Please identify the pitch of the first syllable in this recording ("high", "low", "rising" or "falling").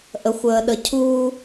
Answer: low